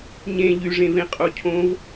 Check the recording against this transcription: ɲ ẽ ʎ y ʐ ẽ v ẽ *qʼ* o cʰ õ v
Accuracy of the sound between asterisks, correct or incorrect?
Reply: correct